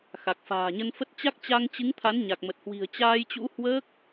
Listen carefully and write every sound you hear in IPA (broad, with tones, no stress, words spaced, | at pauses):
xa˨˩k̚fa̤ː˨˩ɲə˧n fə˦˥t̚ t͡ɕa˦˥k̚t͡ɕa˧ŋt͡ɕɨ˨˦ŋt̪ʰa˨˦n ɲa˨˩k̚mə˨˩t̚hwi̤˨˩ə̯ t͡ɕaː˧jt͡ɕṵ˧˥hwəː˦˥k̚